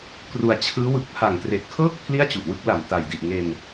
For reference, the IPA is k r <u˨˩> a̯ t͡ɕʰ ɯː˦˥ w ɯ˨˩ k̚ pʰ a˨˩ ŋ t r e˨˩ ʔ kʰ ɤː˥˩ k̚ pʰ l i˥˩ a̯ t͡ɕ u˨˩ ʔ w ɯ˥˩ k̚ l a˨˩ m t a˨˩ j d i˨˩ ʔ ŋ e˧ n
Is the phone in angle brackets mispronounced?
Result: yes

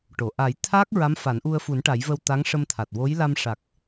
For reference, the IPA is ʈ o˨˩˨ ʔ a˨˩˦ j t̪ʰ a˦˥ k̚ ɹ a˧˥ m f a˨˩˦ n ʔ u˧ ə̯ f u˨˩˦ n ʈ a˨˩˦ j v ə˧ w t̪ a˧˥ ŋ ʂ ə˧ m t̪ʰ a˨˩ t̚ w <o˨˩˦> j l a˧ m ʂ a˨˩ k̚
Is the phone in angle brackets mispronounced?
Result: yes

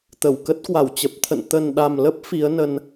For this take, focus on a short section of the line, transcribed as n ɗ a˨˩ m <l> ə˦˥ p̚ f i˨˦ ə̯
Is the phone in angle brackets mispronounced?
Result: no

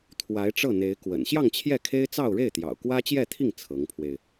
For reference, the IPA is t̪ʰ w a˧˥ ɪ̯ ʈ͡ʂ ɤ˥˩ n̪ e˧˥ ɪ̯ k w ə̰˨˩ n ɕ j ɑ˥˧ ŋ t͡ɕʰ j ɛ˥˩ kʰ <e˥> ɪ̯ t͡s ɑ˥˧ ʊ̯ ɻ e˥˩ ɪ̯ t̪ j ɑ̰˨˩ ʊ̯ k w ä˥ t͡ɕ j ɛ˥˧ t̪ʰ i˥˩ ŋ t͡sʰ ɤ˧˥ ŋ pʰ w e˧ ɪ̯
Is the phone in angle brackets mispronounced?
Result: no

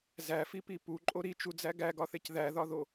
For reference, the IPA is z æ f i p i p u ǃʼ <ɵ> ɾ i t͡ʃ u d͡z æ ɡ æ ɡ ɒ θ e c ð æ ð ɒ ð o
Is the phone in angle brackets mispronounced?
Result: yes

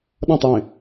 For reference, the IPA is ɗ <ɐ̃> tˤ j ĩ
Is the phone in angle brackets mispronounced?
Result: no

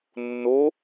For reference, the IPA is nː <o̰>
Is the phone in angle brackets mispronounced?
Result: yes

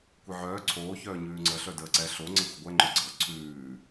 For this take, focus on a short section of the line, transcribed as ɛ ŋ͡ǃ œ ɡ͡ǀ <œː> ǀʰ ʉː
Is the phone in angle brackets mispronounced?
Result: yes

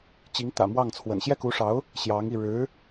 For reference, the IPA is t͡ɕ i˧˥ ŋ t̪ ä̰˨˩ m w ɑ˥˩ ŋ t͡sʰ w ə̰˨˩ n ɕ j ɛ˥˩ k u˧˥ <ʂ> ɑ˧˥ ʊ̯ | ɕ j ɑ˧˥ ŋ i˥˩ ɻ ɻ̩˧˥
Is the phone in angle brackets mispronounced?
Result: no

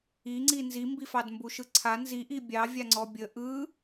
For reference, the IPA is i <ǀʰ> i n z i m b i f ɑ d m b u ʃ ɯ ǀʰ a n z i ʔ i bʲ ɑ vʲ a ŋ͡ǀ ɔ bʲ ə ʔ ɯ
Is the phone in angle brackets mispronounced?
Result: yes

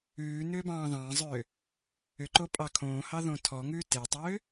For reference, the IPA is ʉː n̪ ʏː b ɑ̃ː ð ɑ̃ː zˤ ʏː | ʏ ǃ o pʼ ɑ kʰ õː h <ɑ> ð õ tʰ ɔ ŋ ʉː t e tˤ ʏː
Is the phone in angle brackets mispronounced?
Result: no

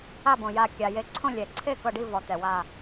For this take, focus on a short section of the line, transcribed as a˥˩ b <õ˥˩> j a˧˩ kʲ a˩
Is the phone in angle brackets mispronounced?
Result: yes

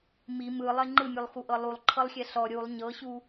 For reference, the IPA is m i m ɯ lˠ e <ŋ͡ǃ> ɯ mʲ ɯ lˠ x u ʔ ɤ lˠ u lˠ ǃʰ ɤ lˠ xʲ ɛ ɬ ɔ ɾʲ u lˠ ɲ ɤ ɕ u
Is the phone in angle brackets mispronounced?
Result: no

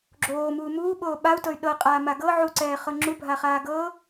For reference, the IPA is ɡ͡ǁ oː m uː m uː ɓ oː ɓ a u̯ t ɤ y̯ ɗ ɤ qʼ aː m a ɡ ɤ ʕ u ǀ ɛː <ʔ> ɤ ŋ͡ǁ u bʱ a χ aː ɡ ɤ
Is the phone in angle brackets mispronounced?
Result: yes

